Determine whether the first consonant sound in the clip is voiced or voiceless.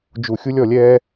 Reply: voiced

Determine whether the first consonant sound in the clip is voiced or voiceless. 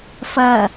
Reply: voiceless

